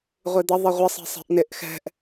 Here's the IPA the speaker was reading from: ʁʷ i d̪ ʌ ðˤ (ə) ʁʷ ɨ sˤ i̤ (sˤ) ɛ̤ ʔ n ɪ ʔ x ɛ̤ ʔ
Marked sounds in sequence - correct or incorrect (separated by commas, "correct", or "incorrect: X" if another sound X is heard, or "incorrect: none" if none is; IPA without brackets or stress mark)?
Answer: incorrect: ɪ, correct